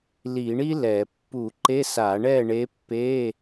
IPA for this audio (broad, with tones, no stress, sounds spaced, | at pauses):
l i˧˩˧ ɳ i˥ l ɛ˧˩˧ pː u˧˩˧ ǃ e˧˥˧ s a˧˩˧ ɳ ɛ˥˨ ɳ e˧˥ pː e˧˥˧